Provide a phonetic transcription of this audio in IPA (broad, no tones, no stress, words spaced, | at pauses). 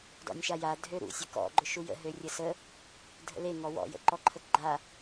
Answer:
dɔ̰nʲʃaja dʱøɾṵ sʲəkɔ̰ ɡ͡ǃʊʃujə̰ ɦørʲəsə | dʱə̰le ŋɔwɔ̰ jə̰ǃɔǃʰəkɡ͡ǃa